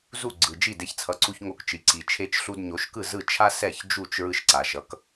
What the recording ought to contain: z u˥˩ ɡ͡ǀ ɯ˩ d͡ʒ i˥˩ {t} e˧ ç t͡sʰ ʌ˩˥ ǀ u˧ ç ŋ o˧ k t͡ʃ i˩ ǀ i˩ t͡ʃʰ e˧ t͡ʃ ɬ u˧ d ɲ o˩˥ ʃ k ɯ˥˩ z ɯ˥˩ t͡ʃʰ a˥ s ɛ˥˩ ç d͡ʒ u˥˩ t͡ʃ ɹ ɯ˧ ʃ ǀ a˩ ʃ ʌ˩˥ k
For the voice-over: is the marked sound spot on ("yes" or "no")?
no